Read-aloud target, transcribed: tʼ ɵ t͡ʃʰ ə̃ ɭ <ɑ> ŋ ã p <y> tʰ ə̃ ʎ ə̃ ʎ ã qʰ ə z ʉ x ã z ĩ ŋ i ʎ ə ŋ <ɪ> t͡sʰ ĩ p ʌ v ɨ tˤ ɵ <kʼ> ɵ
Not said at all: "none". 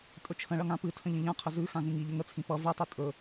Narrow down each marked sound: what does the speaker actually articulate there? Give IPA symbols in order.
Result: ʌ, ɨ, ə, tʼ

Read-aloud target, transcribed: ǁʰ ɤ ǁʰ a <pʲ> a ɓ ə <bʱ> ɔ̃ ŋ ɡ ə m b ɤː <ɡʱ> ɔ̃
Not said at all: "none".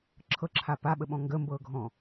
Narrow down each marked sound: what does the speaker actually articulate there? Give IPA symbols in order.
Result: p, ɓ, ɡʱ

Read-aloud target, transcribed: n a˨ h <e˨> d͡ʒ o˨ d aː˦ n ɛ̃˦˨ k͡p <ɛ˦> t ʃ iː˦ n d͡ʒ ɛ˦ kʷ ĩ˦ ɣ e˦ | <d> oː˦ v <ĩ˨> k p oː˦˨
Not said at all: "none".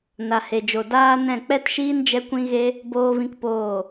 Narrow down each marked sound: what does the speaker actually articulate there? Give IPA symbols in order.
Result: e˨, ɛ˦, b, ĩ˦

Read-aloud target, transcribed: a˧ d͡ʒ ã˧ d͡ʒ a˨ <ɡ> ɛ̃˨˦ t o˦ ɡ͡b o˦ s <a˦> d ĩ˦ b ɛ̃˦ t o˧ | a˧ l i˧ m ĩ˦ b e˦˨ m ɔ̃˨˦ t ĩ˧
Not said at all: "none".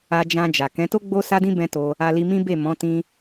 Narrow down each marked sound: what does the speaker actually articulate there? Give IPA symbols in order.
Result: k, a˦

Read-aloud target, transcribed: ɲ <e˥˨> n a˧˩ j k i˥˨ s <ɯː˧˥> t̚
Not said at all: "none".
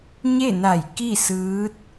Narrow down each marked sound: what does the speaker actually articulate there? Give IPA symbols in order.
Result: e˥˨, ɯː˧˥

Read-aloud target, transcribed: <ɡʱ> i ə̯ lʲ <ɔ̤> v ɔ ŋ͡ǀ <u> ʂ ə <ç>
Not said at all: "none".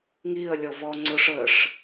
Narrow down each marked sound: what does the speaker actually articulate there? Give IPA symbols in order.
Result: ŋ, ɔ, ʊ, ʂ

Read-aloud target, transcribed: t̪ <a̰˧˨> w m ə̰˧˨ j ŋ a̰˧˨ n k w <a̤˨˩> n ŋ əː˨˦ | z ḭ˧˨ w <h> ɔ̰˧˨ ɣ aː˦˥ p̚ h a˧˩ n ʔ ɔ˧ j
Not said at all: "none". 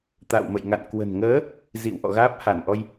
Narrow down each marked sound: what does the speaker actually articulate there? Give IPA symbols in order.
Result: a̰˧˨, ə̤˨˩, ʔ

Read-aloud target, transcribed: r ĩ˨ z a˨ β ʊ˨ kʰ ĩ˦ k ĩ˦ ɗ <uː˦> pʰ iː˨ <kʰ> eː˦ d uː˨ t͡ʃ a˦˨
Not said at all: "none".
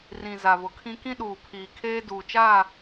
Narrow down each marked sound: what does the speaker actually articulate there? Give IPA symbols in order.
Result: uː˨, kʰ

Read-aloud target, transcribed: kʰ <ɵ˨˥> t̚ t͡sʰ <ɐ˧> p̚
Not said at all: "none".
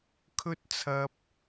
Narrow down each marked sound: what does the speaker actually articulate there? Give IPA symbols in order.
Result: ɵ˥, ɐ˧

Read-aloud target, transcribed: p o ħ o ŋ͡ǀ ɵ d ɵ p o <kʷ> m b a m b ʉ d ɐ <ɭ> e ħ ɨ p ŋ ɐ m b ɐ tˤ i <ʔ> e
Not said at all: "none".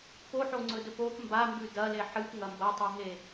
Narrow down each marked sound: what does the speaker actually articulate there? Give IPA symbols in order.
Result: p, l, ɦ

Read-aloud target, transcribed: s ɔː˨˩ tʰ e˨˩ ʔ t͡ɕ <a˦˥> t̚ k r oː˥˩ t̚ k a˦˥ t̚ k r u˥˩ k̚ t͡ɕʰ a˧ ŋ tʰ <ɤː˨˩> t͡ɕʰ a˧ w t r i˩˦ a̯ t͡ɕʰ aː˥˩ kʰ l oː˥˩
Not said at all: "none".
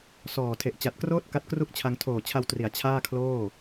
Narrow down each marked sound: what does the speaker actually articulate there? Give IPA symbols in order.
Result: a˨˩, oː˨˩

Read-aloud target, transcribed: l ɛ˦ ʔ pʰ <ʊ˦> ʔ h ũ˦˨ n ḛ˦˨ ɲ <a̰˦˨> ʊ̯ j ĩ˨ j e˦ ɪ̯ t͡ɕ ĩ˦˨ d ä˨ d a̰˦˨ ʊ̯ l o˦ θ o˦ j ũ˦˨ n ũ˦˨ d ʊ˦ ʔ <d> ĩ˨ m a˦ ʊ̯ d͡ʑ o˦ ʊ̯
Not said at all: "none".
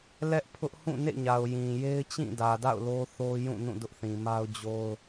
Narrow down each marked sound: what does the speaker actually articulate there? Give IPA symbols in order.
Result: ʊ˦, a˨, θ

